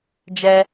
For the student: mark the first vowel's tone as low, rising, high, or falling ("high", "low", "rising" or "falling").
high